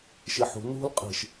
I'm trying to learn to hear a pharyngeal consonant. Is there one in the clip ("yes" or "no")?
yes